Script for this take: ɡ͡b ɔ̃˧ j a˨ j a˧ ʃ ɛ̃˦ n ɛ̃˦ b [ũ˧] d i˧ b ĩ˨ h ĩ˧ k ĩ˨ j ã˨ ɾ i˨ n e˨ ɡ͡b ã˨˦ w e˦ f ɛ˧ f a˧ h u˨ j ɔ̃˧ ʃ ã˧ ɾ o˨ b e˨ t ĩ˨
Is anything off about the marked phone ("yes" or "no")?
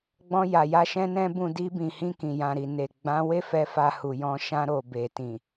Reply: yes